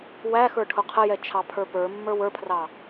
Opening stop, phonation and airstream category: aspirated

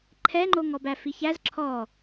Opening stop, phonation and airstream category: click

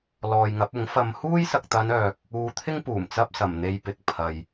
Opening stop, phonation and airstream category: plain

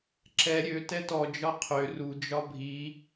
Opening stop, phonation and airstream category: click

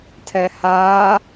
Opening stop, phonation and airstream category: aspirated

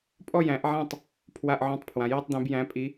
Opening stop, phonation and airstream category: ejective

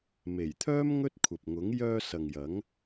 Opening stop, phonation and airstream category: aspirated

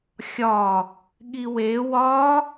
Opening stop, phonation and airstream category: implosive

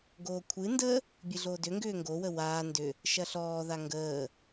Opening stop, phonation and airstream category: plain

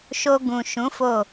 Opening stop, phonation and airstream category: plain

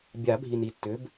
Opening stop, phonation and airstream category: plain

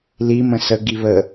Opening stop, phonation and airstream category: plain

